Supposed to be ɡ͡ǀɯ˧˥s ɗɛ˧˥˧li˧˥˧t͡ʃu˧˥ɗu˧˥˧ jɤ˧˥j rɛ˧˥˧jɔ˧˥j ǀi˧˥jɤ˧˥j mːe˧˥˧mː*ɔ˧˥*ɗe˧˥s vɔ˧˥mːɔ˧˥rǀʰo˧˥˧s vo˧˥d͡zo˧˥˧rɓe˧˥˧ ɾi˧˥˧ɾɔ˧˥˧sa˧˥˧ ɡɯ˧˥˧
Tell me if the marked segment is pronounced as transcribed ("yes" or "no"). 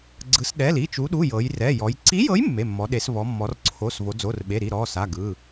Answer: yes